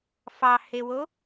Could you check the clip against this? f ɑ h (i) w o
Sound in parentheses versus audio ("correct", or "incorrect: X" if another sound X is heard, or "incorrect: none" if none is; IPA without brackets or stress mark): incorrect: e